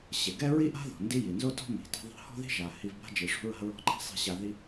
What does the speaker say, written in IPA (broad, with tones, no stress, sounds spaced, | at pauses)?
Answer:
ɕ e˩ ɡ ɛ˥ ɹ i˥ ʔ a̤˥ ð ɔ̤˩ n d i˥ j i˩ n z o˥ t ɔ̤˥ m i̤˩ t i̤˧ ðˤ ɛ̤˧ h ɔ̤˥ ð i̤˥ ʒ a˩ h i˧ v b a̤˥ d͡ʒ i˩ ʂ ṳ˧ ɹ a̤˧ ɹ ɔ̤˧ ǃ a̤˥ sˤ i̤˧ ɕ a˧ ð i˥